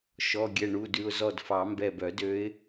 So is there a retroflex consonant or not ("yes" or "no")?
yes